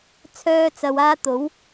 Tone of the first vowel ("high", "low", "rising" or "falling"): high